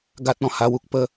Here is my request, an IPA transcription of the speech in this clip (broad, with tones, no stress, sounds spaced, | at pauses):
ɡ a˦ t̚ ɔ̃˧ h a˧ w u˨ k̚ p ə˧